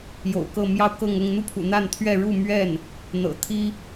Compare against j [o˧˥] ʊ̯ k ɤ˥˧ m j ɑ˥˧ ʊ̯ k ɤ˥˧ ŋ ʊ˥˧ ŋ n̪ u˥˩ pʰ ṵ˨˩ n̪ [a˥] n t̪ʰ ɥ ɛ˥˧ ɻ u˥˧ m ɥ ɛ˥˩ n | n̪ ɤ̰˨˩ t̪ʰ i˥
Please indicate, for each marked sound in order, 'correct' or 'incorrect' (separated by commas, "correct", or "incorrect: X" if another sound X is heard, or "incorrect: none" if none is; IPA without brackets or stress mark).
incorrect: o̰˨˩, incorrect: a˥˧